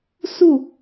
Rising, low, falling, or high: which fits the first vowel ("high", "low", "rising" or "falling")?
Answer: falling